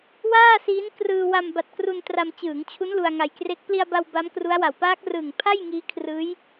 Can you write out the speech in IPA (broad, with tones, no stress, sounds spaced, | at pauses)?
w aː˥˩ s iː˦˥ n k r ɯː˧ w a˧ m b a˨˩ t̚ k r u˧ n t r a˧ m t͡ɕ ɯː˩˦ ŋ t͡ɕʰ u˦˥ n l u˧ a̯ ŋ a˧ j k r e˦˥ k̚ p l i˧ a̯ b a˧ w b a˦˥ m k r u˦˥ a̯ w a˨˩ w p aː˦˥ k̚ r ɯː˨˩ ŋ pʰ a˥˩ j ŋ iː˦˥ kʰ r ɯː˦˥ j